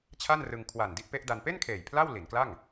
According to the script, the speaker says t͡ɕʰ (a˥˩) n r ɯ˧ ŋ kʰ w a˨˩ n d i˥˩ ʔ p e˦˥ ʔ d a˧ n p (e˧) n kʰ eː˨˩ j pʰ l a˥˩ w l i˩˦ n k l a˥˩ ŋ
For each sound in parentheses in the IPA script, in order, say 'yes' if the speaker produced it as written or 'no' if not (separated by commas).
yes, no